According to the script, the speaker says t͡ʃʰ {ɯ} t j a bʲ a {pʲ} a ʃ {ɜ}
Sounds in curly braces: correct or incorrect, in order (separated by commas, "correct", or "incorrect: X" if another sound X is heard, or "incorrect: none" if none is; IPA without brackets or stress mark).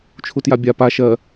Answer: incorrect: u, incorrect: p, correct